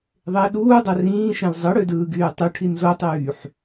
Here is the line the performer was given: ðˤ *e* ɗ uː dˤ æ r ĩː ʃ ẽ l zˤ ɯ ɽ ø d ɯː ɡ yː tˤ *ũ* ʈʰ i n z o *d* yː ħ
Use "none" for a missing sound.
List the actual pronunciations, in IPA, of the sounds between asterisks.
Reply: e, u, tˤ

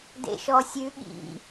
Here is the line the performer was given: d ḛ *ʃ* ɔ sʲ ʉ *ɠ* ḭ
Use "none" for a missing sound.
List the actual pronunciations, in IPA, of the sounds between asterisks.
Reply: ʃ, ɠ

